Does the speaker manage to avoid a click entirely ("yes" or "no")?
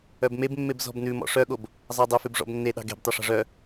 yes